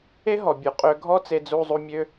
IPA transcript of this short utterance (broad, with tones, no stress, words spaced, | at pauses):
e˥ɦɔ˩ bʲu˩qʼø˧ɡʱɔ˥ t͡se˧d͡zu˧zˤu˧ mʲø˧